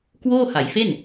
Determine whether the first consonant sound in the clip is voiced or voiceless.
voiceless